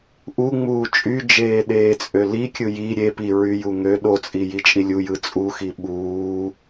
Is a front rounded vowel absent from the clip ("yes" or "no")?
no